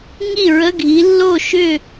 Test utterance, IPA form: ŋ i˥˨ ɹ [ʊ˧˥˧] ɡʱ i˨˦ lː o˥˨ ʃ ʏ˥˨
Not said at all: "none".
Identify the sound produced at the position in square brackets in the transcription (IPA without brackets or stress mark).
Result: ə˧˥˧